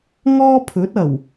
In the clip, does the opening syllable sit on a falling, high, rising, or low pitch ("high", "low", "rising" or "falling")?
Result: high